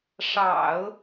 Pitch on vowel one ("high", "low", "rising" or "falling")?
low